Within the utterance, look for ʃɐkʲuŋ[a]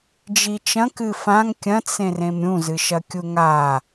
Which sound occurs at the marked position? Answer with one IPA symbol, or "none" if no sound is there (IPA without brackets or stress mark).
a